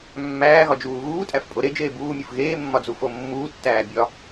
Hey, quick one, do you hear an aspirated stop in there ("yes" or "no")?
no